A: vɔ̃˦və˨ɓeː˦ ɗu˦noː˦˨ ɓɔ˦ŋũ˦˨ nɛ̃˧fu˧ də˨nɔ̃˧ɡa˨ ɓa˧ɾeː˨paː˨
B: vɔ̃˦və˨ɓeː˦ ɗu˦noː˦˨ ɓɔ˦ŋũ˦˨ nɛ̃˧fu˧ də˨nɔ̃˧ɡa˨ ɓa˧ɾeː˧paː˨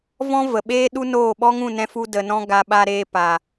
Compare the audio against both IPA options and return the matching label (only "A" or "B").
B